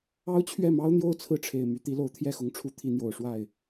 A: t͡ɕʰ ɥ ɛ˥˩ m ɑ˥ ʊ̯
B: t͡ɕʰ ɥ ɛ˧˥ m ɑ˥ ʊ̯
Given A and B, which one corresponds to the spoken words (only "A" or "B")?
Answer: A